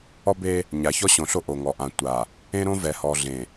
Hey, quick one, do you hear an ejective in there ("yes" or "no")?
no